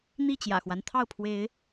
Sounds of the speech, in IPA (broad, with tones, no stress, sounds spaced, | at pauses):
n̪ i˥˨ t͡ɕ j ä̰˨˩ x w a˦ n t̪ʰ ɑ˥˨ ʊ̯ pʰ w e˨˦ ɪ̯